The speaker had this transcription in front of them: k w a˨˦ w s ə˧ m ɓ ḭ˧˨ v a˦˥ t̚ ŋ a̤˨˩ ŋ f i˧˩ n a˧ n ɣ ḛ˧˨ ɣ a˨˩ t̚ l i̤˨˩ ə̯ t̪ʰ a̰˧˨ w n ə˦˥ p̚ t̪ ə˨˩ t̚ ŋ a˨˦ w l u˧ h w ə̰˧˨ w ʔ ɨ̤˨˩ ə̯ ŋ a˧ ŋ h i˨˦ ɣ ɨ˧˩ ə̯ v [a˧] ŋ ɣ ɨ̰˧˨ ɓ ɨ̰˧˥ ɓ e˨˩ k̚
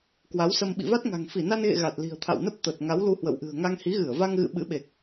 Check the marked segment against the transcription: correct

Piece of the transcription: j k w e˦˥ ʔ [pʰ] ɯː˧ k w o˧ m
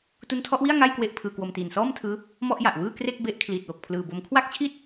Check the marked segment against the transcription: correct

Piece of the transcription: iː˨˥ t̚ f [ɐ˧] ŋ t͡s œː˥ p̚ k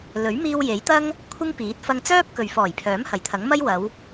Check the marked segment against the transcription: correct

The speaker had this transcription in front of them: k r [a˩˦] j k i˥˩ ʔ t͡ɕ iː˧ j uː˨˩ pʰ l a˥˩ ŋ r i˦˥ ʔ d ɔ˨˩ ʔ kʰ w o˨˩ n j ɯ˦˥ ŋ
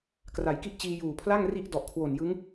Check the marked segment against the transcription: correct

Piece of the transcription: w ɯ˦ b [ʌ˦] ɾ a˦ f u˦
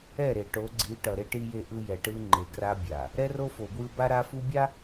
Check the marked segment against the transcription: incorrect: a˦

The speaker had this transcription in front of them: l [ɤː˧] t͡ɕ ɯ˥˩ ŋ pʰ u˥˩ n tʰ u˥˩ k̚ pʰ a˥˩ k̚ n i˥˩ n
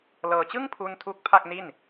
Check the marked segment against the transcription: correct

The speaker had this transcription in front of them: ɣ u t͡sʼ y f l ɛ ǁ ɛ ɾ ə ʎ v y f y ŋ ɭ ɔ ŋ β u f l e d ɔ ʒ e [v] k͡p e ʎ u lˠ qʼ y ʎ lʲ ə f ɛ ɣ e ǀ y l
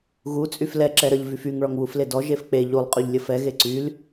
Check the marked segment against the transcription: incorrect: f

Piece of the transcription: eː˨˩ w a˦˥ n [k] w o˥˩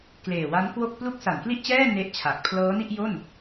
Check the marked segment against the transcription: correct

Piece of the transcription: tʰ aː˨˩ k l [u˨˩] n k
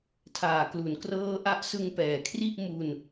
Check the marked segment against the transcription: incorrect: u˩˦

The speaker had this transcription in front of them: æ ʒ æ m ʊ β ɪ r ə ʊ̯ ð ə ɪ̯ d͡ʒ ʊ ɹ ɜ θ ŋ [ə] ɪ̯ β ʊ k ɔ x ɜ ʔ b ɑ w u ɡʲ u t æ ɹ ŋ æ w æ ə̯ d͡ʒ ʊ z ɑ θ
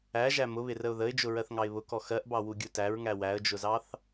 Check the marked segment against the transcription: incorrect: ɑ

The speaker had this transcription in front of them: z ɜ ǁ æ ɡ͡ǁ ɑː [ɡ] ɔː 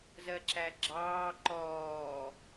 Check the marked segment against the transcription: incorrect: ǃ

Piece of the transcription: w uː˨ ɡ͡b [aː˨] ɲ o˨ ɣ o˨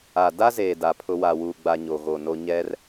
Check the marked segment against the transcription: incorrect: a˨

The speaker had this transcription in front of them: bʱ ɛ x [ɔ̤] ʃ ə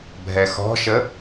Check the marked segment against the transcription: correct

